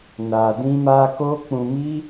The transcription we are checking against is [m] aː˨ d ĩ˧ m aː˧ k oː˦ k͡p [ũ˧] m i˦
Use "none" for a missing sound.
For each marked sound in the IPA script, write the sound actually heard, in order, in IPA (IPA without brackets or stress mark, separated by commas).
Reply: n, ũ˧